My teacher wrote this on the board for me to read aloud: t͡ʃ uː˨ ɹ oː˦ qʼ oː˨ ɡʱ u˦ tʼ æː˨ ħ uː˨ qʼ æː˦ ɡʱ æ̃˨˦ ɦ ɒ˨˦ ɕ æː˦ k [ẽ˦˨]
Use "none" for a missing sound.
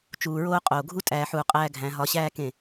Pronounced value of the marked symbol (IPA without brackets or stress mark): ẽ˦˨